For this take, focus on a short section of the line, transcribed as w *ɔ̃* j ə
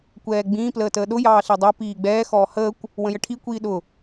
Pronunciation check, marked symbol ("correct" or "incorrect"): incorrect